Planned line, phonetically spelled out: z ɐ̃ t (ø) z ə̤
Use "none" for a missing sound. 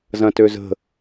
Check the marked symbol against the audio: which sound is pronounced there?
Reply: ø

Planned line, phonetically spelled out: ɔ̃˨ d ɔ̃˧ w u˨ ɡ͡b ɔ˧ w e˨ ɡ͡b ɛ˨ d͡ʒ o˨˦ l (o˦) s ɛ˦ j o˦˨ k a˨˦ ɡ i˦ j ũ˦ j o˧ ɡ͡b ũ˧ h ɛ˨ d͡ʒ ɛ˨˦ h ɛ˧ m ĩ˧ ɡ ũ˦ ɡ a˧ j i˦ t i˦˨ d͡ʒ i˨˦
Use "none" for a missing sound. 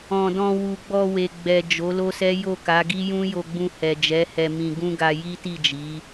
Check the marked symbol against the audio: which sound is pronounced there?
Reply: o˦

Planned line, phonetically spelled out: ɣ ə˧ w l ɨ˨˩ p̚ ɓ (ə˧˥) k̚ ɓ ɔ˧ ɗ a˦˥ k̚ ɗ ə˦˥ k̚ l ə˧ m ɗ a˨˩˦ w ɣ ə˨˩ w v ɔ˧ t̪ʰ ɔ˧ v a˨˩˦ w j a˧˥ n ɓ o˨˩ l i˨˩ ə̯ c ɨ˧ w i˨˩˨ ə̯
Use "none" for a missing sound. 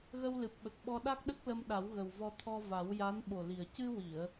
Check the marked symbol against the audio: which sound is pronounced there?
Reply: ə˨˩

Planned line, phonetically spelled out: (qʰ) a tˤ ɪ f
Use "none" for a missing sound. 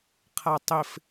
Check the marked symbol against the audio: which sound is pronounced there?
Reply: qʰ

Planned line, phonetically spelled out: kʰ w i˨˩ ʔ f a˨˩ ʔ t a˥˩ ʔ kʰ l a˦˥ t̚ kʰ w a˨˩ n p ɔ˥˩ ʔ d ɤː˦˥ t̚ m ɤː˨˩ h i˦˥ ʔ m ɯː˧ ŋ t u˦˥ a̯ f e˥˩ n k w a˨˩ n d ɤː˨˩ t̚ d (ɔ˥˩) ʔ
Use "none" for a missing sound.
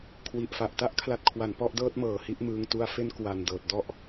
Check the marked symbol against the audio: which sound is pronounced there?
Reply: ɔ˥˩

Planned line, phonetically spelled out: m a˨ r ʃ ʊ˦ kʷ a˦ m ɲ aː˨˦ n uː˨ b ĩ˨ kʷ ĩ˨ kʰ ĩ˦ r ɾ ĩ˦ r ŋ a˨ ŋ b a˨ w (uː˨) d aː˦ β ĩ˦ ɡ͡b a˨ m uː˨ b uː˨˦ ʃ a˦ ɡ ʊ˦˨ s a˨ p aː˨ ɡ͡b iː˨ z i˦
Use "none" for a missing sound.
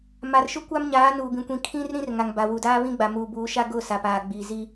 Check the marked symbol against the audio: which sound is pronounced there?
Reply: u˨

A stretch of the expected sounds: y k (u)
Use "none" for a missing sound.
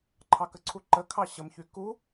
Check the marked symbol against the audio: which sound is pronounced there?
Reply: u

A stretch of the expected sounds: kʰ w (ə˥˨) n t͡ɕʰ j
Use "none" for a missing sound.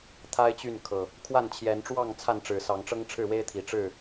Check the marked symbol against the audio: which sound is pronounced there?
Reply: a˥˨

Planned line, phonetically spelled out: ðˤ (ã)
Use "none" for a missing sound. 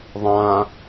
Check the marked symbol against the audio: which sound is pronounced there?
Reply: ã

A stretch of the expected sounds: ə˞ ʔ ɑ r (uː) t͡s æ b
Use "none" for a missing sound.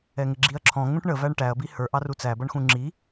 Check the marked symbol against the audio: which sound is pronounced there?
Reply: u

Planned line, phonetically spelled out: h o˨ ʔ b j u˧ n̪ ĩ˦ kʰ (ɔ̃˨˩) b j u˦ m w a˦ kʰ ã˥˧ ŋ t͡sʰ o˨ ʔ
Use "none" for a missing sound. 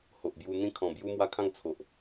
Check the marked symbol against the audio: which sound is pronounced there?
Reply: ɔ̃˨˩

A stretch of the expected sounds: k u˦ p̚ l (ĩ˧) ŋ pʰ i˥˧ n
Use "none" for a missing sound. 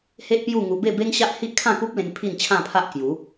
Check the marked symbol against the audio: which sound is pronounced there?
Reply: ẽ˧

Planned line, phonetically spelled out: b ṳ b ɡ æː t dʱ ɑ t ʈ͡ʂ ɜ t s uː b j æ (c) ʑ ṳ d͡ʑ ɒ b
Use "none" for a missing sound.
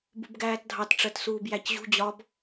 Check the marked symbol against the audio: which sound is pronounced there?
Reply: c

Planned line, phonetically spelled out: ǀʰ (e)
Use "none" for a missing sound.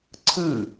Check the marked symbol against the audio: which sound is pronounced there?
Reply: ɨ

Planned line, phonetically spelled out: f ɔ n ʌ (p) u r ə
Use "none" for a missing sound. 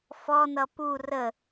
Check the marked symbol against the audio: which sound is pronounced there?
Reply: p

